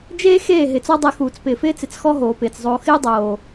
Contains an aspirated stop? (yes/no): no